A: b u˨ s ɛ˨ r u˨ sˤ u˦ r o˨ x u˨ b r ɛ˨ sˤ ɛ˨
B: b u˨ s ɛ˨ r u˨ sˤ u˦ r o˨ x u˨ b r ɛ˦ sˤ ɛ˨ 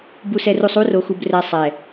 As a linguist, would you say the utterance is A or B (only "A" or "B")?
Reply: A